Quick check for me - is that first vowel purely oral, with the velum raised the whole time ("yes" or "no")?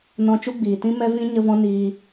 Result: no